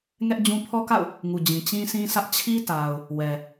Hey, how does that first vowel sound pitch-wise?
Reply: high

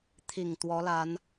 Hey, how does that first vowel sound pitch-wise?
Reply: low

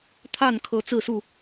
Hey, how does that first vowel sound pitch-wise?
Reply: falling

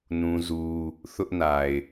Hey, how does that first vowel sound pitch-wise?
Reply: high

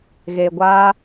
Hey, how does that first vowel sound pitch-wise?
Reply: low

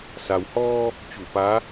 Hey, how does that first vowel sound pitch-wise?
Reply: low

